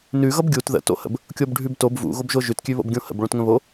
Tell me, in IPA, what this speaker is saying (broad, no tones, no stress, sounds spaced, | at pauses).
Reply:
n ʉ ɣ ʌ b ɡʲ u t ð ə̰ t o̰ h ə̰ b | kʲ o b ɖʱ ʉ b t o b v ṵ ɣ o b ʒ o ʒ ʉ t kʲ ʉ β o̰ b ɡʲ õ h ə̰ b ɭ õ t ŋ ə̃ β o